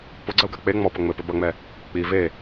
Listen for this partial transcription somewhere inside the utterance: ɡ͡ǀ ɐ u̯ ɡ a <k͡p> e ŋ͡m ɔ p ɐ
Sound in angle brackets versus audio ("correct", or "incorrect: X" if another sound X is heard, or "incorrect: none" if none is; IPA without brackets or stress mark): correct